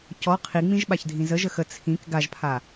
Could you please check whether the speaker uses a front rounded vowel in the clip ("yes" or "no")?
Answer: no